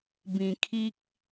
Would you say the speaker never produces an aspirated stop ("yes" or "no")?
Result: no